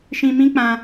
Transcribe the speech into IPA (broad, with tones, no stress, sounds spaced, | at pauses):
ʃ ĩ˧ m ĩ˦ k͡p ã˧